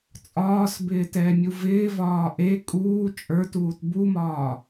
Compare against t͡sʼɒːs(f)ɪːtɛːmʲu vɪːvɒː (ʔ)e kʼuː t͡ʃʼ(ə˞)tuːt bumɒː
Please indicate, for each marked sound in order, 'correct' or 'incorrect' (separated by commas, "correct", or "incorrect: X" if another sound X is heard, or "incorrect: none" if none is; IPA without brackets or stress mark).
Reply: incorrect: b, correct, correct